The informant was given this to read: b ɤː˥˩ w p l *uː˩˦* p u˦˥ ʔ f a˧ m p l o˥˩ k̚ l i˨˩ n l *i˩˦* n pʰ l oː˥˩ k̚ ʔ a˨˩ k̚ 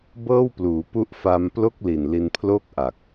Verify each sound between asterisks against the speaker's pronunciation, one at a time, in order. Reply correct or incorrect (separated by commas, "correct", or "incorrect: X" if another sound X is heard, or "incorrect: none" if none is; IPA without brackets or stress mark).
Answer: correct, incorrect: i˧